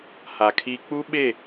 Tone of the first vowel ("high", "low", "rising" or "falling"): low